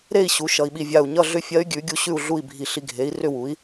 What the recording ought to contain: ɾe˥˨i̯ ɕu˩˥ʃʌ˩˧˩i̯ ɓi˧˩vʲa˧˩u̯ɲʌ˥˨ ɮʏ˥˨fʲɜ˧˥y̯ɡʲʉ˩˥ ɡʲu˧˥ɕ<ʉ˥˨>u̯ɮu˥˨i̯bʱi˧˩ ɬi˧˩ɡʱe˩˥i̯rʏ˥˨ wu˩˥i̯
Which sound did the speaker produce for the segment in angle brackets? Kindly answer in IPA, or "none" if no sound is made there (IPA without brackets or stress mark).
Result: ʉ˥˨